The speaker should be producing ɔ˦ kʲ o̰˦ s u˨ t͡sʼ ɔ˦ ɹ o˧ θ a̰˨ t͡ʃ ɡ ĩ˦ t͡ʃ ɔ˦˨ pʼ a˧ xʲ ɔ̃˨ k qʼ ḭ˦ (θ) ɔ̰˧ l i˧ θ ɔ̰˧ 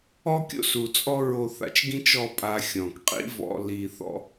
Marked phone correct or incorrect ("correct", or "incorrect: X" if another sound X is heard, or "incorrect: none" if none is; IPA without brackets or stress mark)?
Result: incorrect: v